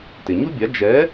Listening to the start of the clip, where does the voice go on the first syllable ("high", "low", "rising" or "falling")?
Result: low